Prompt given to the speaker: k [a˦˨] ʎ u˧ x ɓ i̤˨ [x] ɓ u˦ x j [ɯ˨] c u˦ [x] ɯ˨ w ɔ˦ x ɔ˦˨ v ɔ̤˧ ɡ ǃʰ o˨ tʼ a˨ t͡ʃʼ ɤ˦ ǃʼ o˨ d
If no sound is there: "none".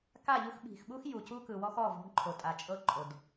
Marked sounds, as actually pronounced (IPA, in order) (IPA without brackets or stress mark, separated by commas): a˦˨, x, u˨, k